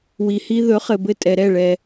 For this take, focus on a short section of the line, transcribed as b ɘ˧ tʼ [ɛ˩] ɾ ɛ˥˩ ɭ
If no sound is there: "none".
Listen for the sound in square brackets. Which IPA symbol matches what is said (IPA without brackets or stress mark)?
ɛ˩